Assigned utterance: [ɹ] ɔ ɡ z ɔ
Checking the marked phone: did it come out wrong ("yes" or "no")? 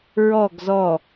no